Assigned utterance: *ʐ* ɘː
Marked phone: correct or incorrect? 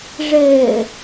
correct